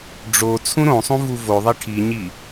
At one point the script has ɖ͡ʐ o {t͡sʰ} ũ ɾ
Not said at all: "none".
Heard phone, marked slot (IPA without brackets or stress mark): t͡sʰ